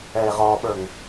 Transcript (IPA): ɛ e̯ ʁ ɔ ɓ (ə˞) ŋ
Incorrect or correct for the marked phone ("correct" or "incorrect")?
correct